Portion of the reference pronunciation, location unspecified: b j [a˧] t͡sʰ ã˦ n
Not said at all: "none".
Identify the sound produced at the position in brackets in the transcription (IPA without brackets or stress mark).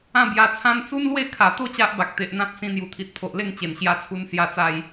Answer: a˧